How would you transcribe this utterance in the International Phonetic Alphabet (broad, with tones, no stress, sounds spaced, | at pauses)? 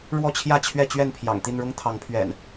ɻ w ɔ˥˨ t͡ɕʰ j ä˥˨ t͡ɕʰ ɥ ɛ˥˨ t͡ɕ ɥ ɛ˥˨ n pʰ j ɑ̰˨˩ ŋ t̪ i˥˨ n ɻ ʊ˦ ŋ t̪ʰ ɑ˨˦ ŋ pʰ ɥ ɛ̰˨˩ n